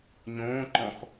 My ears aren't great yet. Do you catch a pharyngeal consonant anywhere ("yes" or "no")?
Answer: no